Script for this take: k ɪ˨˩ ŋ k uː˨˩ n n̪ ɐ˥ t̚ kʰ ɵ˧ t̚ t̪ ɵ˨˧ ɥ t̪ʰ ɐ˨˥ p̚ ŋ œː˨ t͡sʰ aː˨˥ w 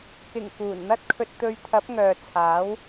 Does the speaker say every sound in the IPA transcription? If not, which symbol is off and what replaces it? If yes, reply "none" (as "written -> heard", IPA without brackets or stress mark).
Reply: none